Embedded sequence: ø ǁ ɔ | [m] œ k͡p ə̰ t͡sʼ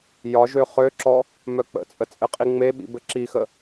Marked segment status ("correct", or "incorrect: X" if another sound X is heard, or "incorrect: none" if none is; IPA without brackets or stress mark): correct